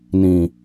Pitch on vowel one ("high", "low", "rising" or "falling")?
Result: low